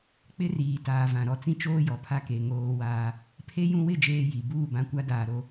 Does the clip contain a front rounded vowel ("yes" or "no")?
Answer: no